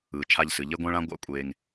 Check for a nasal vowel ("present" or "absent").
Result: present